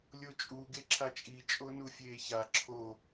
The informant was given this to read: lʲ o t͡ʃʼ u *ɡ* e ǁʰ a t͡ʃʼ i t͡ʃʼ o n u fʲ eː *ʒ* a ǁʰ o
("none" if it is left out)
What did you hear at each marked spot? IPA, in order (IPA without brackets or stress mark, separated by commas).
ɡ, ç